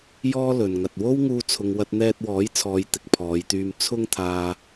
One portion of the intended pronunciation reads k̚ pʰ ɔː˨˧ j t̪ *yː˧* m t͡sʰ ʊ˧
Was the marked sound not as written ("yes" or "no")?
no